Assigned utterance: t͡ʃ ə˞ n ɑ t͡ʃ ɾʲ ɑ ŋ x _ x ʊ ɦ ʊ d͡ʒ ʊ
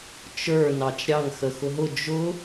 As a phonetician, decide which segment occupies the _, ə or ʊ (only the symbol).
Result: ə